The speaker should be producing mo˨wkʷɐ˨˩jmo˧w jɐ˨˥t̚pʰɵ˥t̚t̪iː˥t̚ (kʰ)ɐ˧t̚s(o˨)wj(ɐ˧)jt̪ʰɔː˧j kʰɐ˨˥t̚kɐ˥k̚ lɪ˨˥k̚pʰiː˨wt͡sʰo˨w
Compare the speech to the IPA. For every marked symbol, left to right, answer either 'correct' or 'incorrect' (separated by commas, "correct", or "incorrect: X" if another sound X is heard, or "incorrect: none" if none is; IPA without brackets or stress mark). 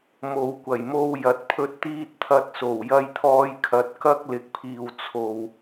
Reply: incorrect: t̪ʰ, incorrect: o˨˩, correct